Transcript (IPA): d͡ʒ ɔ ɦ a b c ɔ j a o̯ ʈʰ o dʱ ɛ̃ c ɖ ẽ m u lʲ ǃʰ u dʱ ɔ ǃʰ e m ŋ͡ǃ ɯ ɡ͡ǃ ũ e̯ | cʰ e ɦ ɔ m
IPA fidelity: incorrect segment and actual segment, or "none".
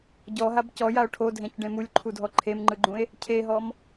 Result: d͡ʒ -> ɟ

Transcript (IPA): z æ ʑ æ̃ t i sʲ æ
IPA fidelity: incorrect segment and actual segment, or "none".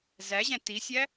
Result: none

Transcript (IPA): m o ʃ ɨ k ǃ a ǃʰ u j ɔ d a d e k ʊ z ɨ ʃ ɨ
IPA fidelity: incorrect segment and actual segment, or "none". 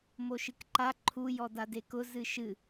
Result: none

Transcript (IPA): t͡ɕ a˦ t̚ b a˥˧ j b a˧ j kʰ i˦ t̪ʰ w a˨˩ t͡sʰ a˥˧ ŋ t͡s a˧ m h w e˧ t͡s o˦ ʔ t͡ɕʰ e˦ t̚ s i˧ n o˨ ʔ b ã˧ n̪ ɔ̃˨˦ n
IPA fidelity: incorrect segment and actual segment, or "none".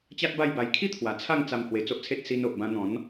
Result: t͡ɕʰ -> t͡sʰ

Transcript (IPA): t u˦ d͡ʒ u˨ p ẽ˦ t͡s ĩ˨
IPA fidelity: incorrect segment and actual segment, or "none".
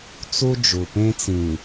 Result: t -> t͡s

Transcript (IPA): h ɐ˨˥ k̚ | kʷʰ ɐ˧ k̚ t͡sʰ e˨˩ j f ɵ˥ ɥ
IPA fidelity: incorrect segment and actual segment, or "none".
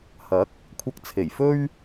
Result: none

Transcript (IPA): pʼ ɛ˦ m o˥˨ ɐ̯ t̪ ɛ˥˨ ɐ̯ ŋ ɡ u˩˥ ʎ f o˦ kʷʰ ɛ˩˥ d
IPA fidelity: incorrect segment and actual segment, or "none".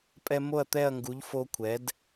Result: none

